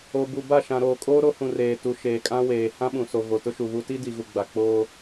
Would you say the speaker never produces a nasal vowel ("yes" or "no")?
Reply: no